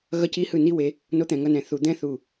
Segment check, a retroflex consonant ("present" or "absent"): absent